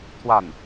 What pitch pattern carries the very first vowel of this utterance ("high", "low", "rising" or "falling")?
falling